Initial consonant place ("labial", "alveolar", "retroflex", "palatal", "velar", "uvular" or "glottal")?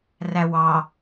alveolar